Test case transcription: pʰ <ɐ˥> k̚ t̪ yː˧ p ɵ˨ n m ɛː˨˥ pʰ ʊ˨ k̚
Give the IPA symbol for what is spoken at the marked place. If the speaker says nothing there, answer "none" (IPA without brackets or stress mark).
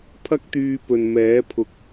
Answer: ɐ˥